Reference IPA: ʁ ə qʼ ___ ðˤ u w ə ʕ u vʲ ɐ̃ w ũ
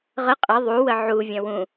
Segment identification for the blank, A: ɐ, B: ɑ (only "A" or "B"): A